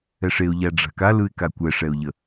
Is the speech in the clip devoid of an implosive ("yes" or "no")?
yes